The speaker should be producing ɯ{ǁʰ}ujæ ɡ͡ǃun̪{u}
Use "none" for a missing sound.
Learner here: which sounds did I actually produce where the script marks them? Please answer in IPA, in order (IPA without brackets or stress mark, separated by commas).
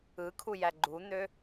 kʰ, ø